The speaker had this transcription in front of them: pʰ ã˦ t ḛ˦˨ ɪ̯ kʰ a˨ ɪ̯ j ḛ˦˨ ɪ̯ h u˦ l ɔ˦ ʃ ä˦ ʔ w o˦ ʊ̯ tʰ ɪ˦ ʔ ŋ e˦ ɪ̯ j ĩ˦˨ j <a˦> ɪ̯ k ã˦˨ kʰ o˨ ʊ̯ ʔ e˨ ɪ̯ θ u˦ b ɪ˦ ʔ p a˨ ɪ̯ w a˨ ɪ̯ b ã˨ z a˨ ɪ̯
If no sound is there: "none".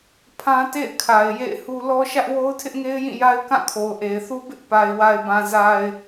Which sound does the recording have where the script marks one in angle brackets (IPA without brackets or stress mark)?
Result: a˦